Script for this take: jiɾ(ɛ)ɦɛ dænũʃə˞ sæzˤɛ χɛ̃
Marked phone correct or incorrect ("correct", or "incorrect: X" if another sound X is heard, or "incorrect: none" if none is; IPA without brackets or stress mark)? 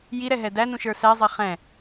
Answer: correct